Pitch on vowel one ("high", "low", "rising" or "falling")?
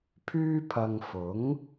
high